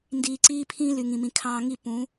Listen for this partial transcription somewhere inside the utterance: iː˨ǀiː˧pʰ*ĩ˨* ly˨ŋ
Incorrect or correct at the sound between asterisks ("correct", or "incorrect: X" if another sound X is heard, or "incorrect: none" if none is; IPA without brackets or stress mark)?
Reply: incorrect: ĩ˧